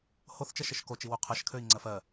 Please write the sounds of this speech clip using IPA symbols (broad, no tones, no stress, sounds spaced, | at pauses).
h o θ t͡ʃ ɜ ʃ ə ʃ k o t͡ʃ i w u qʰ ɜ ʃ kʰ ø i̯ ŋ͡ǀ ɜ f ɜ